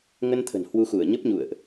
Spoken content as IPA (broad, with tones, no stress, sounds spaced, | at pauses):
ŋ ə˧ n t̪ʰ ə̤˨˩ n h w u˧ x u˧˩ ə̯ ɲ ə˦˥ p̚ ɲ ṵ˧˨ ə̯ ʔ